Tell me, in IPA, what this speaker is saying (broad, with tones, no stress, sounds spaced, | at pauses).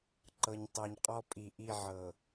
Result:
ǃ ɤ˨ ɲ tˤ ɤ˨ ɲ qʼ ɔ˦ pʼ i˨ ʔ i˦˨ ʕ ɤ˨